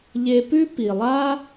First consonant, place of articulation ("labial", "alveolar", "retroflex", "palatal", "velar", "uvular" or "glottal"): palatal